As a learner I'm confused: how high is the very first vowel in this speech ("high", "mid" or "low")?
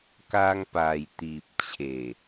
low